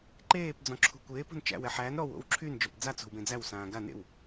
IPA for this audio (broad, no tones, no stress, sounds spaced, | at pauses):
ǃ eː p d͡z ɔ̃ ǁʰ ṳ kʷ eː p o̤ n t͡ʃ æ̰ w ɛ ħ æ n ɾ ɔ w o̰ w ǁʰ y n d͡ʒ ɔ p d͡z a t͡s o̤ w b ẽ d͡z æ w s ãː ɡ a n ḛ w